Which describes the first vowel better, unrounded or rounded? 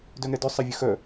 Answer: rounded